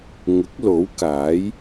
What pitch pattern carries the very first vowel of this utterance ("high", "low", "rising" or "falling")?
rising